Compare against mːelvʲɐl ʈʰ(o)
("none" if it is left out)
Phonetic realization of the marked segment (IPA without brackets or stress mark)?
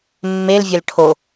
o